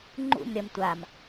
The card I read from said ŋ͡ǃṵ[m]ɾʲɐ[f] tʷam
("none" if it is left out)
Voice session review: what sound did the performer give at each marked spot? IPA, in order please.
m, m

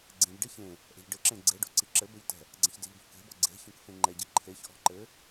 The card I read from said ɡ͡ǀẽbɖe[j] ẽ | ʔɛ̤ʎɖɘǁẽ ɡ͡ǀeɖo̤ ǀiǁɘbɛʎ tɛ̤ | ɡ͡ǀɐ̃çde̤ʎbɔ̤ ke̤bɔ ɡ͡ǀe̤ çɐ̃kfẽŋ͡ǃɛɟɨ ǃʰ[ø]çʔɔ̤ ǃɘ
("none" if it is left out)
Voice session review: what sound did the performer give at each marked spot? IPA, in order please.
ç, e

